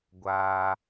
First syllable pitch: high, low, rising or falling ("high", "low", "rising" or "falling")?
high